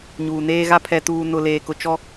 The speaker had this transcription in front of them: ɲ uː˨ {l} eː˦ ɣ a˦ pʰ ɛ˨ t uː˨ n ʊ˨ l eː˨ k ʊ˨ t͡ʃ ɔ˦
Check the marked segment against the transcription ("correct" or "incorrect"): incorrect